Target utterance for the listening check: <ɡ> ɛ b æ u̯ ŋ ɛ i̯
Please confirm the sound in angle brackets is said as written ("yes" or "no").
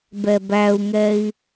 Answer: no